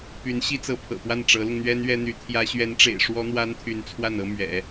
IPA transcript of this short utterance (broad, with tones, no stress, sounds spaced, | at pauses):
p y˧˥ n ɕ i˥ t͡s ɤ˧˥ pʰ ɤ̰˨˩ p w a˥˩ n ʈ͡ʂ ɤ˧˥ l ʊ˧ ŋ n̪ ɥ ɛ˥ n ɥ ɛ˥ n̪ y˧˥ t̪ʰ j ä˥ ɕ ɥ ɛ˧˥ n ʈ͡ʂ ḛ˨˩ ɪ̯ ʂ w ɔ˥ n̪ w a˥ n t̪ʰ y˧˥ n t͡sʰ w a˥˩ n ɤ˥ m ɥ ɛ̰˨˩˦